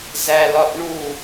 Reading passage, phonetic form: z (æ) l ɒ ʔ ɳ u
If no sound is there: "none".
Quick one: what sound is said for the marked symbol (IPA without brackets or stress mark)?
æ